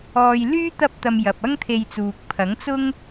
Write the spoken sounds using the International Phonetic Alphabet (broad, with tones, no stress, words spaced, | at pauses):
ɔː˧j lyː˥ t̪ɐ˧p̚t̪ɐ˨m jɐ˨p̚ɐ˥ŋt̪ʰe˧jt͡suː˨k̚ pʰɐ˨˥ŋt͡sʊ˥ŋ